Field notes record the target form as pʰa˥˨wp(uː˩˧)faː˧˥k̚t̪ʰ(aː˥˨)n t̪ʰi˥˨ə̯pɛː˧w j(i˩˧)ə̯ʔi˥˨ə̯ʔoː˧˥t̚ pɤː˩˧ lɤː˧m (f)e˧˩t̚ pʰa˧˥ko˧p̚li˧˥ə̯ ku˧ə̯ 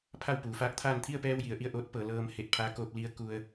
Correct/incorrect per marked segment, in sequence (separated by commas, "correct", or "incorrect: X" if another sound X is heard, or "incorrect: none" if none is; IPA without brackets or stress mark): correct, correct, correct, incorrect: h